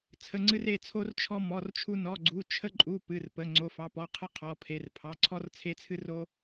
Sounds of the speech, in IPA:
t͡sʰə˩˧˩ŋ͡ǀɨ˧r e˩˧˩t͡sʰo˧r t͡ʃʰɔ˧mɔ˩˧˩rt͡ʃʰu˧ nɔ˩˧˩ɡ͡ǀu˩˧˩ t͡ʃʰə˧ǃʼu˩˧˩ pɨ˩˧˩rpə˩˧˩ ŋ͡ǀo˩˧˩fɑ˩˧˩pɔ˩˧˩ qʰɨ˧qʰɔ˩˧˩pʰe˩˧˩r pʰɑ˩˧˩ǀʰɔ˧rt͡sʰe˧t͡sʰɨ˧ ro˧

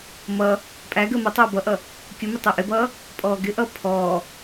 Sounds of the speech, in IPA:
mʌː | pʼæɡəː mʌtˤʌː bʌʔʌ | kʲʊmɪ tˤəːʔɪbʌː | pʼɔːɡɪʔʌː pʰɔː

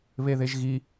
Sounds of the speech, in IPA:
βeðeʒɣi

